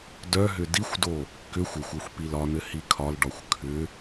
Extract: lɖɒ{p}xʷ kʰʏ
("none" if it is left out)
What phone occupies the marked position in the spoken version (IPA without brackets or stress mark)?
none